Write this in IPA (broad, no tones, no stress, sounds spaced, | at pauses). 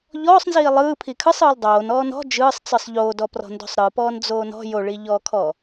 ʎ ɔː sˤ n z iː lˠ ɯː pʰ i kʰ ɯ sˤ ɯː l dˤ oː n ɔː n ɔ̤ d͡ʒ ɯː sˤ t͡s ɯ sˤ ʎ oː d ɔ p r ɔ̤ n d o̤ sˤ ɾ ɯ p ɔː n d͡z oː n ɔ̤ j o ɭ iː ʎ ɔː kʰ ɔː